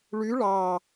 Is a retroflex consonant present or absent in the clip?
present